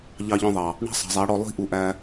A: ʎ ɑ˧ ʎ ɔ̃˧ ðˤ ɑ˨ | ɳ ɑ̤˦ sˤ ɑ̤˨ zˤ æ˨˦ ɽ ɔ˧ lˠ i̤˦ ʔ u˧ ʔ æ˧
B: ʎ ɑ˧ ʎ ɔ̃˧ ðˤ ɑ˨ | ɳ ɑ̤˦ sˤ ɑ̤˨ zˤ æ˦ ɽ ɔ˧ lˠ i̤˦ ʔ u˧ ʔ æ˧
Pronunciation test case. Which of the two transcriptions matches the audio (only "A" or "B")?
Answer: A